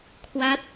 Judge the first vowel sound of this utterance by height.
low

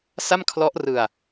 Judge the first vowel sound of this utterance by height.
low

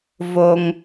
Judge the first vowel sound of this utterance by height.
mid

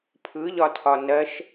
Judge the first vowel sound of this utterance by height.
high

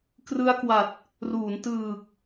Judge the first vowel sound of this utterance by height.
high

